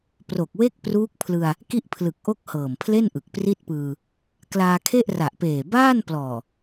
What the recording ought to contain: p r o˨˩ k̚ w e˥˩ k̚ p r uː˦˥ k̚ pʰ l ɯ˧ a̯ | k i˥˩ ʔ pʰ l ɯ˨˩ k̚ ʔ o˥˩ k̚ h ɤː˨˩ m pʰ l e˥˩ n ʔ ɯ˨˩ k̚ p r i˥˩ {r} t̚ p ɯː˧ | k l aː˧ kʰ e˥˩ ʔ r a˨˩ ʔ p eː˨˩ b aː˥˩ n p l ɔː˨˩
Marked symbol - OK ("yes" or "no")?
no